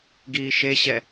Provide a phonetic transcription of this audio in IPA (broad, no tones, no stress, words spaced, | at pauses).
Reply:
ɡiːʃeɕɛ